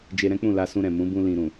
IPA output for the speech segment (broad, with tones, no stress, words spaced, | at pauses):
d͡ʒe˧ɾɛ̃˦k͡pũ˦˨ la˧sũ˧ɾɛ̃˨ mũ˨˦bũ˧ lĩ˨ɾũ˨